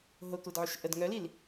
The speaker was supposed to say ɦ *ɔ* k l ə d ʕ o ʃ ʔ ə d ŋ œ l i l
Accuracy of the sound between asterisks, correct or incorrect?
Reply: incorrect